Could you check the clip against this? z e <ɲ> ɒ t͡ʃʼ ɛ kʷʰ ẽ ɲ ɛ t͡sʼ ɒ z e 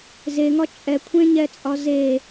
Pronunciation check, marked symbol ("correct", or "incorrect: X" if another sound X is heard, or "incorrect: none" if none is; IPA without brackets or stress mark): incorrect: ŋ